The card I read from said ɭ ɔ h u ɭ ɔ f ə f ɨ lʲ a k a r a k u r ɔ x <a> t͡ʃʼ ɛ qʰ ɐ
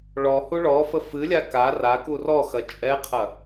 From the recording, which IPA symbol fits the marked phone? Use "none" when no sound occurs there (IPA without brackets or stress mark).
ɐ